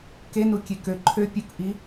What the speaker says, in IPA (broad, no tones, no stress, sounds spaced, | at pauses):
k e n u kʲ e k ø ǃʰ ø pʲ u k ʔ i